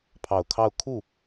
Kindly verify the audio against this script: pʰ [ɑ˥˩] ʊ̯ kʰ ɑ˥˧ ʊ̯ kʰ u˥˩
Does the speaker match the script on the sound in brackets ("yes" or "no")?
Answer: no